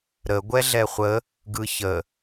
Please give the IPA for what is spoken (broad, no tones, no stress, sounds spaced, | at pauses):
ɾ ə ɡʷ ɛ ɮ ɛ χʷ ə | ɡ ɯ ç ə